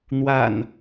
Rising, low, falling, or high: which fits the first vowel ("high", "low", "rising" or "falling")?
low